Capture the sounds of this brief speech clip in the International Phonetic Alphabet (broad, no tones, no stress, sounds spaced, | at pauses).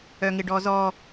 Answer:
œ ŋ ɪ ɖ ɔ z ɔ